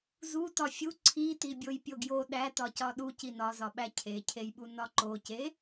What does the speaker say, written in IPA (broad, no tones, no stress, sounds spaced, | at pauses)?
z u t ɒ fʲ u ǀʰ i t i bʲ o j pʲ o ɡ j o ɗ æ t ɒ c ɒ ɗ u c i n ɒ z ɒ ɓ æ cʰ e cʰ e j ɓ u n ɒ ǃ o c e